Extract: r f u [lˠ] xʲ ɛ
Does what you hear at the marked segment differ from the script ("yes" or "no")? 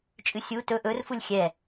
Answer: yes